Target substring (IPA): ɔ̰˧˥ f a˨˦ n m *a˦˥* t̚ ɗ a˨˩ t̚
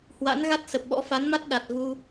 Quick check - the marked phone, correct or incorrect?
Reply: correct